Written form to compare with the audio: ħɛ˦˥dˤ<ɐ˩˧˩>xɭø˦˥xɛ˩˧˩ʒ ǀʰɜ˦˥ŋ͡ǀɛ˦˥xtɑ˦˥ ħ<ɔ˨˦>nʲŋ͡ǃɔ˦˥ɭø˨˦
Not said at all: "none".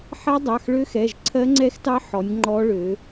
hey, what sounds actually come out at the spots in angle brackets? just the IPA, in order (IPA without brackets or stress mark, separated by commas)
ɑ˩˧˩, ɔ˨˦